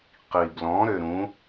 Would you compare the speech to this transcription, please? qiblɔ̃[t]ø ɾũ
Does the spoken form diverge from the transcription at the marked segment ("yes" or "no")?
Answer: yes